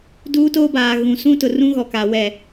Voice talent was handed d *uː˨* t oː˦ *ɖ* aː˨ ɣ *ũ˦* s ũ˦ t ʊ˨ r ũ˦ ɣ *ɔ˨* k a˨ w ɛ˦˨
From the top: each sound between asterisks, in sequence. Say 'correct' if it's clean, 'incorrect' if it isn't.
incorrect: uː˦, incorrect: b, incorrect: ũ˨, correct

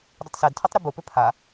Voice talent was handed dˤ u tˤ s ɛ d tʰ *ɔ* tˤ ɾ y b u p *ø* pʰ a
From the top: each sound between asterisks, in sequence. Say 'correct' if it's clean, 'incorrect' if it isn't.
correct, correct

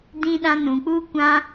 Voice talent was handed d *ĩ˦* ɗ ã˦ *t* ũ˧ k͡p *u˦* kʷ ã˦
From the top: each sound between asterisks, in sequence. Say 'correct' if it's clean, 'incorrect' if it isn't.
correct, incorrect: n, correct

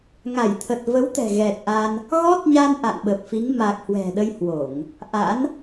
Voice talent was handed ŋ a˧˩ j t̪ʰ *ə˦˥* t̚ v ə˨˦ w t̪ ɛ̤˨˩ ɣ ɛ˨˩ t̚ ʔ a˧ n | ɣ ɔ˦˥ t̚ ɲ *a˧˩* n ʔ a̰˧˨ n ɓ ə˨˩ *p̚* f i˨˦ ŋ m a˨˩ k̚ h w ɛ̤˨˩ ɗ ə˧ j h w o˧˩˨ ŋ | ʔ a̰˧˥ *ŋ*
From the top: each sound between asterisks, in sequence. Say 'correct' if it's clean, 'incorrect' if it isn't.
incorrect: ə˨˩, incorrect: a˧, correct, incorrect: n

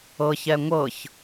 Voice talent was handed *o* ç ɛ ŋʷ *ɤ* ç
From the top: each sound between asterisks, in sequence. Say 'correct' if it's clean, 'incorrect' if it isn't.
incorrect: ɤ, correct

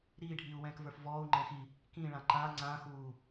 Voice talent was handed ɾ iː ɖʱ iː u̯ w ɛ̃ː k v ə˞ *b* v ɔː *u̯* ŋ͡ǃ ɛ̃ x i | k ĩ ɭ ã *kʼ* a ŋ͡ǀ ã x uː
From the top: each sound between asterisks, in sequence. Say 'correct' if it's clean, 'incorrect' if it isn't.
incorrect: f, correct, incorrect: ǃ

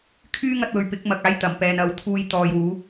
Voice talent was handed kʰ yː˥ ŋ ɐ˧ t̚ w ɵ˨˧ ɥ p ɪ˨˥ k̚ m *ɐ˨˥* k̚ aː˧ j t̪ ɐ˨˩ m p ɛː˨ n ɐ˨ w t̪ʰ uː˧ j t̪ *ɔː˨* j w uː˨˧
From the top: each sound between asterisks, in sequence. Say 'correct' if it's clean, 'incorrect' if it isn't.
incorrect: ɐ˨, correct

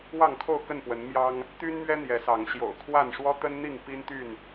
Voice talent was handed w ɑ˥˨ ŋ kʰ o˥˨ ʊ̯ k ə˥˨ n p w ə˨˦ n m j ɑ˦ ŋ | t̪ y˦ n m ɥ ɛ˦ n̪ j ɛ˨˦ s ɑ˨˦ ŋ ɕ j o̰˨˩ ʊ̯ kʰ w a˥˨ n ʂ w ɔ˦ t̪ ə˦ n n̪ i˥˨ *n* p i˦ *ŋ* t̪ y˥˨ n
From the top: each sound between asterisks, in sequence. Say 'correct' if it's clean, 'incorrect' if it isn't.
incorrect: ŋ, incorrect: n

